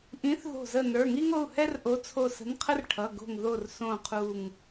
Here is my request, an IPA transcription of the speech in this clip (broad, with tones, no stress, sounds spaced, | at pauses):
ʔ ĩ˨˥ θ ð o̤˧˩ z ə˧˩ n ə˞˩˧˩ ŋ i˥ ŋ o˩˧˩ u̯ h ɛ˥ r ʔ o˨˥ t͡sʰ o˧˩ s ə̤˨˥ n qʰ ə˥ r ʈʰ ʌ˩˧˩ ɡ o̤˧˩ ŋ ð o˧˩ r s õ˧˩ qʰ u˧˩ ŋ